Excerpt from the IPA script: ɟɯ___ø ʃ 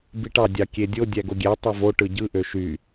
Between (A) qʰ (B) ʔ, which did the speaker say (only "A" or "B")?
B